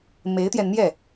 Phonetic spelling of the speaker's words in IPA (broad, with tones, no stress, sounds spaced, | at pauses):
m e˧˥ ɪ̯ t̪ j ɛ˧ n n̪ j ɛ˥˩